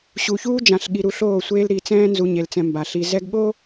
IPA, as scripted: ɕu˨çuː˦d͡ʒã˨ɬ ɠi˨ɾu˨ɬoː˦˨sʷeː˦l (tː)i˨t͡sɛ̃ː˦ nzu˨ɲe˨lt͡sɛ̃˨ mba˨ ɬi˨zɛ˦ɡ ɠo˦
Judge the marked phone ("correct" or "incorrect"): incorrect